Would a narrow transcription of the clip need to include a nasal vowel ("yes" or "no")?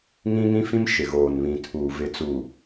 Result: yes